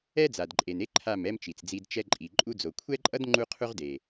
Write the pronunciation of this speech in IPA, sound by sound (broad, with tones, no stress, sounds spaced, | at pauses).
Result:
ɛ˦ d͡z a˨ d ǃʼ e˨ n e˦ ǃʰ a˦˨ m ɛ˦ m t͡ʃ i˨ t͡s d͡z i˧ d t͡ʃ ɛ˧ ǃʼ i˨ ǃʼ u˧ d͡z o˨ kʷʰ ɛ˦ ǃʼ ʌ˦ d ŋ͡ǃ u˦ qʰ u˦ ʁ d e˨